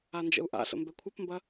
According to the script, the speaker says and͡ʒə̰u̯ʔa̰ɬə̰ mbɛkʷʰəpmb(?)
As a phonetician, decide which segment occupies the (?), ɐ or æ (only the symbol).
ɐ